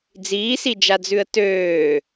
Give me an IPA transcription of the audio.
d͡z iː s i d͡ʒ a d͡z ʉ ə̯ t øː

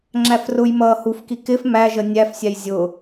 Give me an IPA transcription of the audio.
ŋ͡ǁ æ f r ʊ j m ʌː h u f k i k ɪ f m æ ʒ ə nʲ æ f sʲ æ j zʲ ʊ

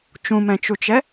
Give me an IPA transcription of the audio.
t͡ʃ ũ m ɛ̃ t͡ʃ u t͡ʃ ɛ

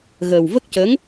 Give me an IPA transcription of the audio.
ɣ əː˨˩ w v ə˦˥ k̚ c ə˧˥ ŋ

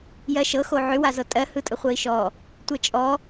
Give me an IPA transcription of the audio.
j ɜ ʃ ɤ x o ʕ ʏ w a z ɤ tʼ ɜ h ɯ tʼ ə χʷ ɜ i̯ ʃ ɔ | tʷ ɛ t͡ʃʼ ɔ

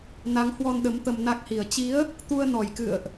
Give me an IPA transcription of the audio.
n a˨˦ ŋ h w ɔ˧ n ɗ ə˨˦ m t̪ ə˧ m n a˦˥ k̚ h i˨˩ ə̯ t͡ɕ i˨˦ ə̯ | t̪ u˧ ə̯ n ɔ˨˩ j k ɨ̰˧˨ ə̯ ʔ

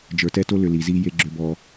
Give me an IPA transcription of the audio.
d͡ʒ ə˞˨ t ɛ˦ t o˦ l ʏ˨ l i˨ z i˦ j e˦ ɡ͡ǁ ʏ˦ b ɔ˦

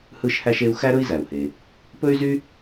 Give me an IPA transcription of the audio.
h ɯ˥ ʃ h æ˥ ʃ e˥ u̯ x æ˥ ɾ ɵ˥ i̯ z æ˩ u̯ h e˩ | p ɵ˥ y̯ z y˥

